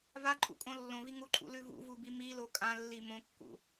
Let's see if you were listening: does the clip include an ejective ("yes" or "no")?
yes